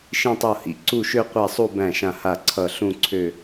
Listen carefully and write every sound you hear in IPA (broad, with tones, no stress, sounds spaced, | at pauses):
ʃ ĩ˥˧ tˤ o˥˩ h ḭ˥˩ ǀ u˥˩ ʃ ø˥˧ qʷ æ˥˩ sˤ u˥˧ b æ̃˥˩ ʃ ã˥˩ h a˥˩ ǀʰ ʌ˥˩ ɬ ũ˥˧ ǀʰ ø˥˧